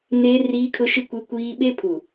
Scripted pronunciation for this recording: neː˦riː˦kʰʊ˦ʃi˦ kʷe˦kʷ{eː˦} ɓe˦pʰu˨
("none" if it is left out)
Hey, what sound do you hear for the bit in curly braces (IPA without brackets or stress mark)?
iː˦